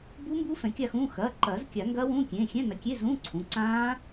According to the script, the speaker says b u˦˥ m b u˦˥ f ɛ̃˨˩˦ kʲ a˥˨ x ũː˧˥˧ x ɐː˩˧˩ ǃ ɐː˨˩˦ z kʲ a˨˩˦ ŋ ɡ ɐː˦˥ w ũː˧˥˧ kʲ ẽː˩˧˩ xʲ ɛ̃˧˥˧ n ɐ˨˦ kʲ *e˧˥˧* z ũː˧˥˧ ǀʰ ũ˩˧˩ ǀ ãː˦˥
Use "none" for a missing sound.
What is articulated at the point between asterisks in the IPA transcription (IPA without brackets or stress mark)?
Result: e˧˥˧